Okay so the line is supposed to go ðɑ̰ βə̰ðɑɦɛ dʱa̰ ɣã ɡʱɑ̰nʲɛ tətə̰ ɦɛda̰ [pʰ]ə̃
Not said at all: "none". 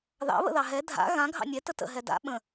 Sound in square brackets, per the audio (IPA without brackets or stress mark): ɓ